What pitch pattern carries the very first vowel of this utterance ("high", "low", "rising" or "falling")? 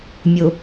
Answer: low